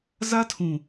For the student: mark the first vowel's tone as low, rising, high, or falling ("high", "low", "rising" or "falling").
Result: high